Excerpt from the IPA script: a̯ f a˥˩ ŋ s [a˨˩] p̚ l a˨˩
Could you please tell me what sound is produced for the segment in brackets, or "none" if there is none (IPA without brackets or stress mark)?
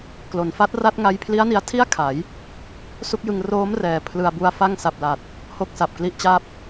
a˨˩